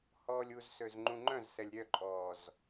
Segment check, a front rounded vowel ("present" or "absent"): present